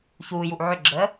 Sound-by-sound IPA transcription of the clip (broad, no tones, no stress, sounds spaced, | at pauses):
ç uː j u ʔ ʕ ʏ ɡ͡ǁ əː